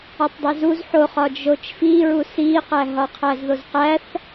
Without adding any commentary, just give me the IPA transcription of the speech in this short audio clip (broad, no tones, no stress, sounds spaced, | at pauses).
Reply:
ɒ tˤ dˤ e z u z ħ o χ ɒ d͡ʒ o t͡ʃ f i ɹ u s i q æ ɦ ɒ qʰ æ z ð o z q æ θ